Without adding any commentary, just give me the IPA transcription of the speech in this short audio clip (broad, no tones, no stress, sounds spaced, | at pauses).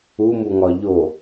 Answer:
u m u ŋ ɒ ʎ o